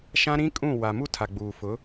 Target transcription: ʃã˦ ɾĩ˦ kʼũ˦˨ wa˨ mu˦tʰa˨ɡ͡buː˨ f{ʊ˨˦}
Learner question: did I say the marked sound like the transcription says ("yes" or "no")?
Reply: yes